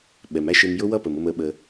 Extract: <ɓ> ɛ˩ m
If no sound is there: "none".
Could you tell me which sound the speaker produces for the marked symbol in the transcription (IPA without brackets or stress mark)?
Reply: ɓ